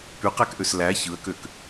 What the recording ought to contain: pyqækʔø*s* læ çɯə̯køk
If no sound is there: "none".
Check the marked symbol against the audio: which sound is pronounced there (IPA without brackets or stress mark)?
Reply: s